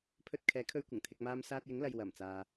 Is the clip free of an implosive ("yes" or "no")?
yes